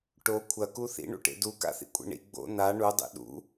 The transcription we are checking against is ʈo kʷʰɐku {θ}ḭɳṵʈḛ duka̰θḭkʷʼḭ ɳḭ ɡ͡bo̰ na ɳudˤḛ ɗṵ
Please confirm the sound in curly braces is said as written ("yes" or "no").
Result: yes